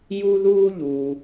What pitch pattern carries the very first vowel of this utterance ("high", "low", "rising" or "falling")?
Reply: high